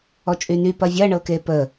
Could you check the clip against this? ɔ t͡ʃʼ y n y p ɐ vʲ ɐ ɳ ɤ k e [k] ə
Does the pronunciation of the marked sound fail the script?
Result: yes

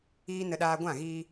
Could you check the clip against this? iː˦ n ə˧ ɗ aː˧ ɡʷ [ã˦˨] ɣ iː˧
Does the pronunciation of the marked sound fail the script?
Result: no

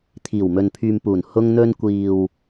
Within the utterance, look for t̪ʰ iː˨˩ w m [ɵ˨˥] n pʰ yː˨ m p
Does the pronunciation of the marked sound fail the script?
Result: yes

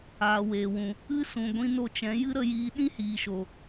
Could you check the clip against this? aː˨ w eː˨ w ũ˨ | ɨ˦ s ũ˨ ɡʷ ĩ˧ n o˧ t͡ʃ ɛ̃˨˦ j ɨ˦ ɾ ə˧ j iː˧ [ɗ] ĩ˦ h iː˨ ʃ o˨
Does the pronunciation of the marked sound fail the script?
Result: no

